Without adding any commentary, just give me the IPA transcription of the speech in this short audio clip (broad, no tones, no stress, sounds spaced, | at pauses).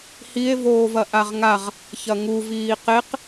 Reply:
h i e̯ v oː v ɐ ʔ a ʁ ŋ a ʁ | ç ɐ ŋ u v iː q e q